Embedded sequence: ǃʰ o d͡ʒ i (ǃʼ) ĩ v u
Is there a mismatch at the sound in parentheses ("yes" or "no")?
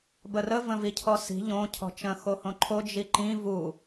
yes